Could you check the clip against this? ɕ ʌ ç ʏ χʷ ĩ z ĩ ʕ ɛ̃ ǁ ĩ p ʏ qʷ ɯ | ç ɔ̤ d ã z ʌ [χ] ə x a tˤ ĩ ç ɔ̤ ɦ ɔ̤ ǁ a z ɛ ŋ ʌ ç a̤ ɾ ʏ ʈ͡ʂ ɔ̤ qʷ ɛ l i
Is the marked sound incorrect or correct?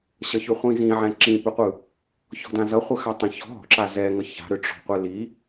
incorrect